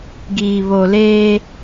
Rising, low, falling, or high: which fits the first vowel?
low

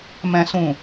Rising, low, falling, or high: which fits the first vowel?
low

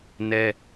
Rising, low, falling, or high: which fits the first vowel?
high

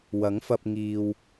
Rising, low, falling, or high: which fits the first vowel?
rising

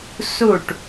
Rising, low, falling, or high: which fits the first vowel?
falling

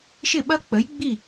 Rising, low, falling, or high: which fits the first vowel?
falling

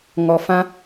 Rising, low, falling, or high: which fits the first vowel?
low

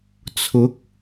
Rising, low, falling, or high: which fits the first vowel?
rising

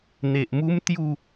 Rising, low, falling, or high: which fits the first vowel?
low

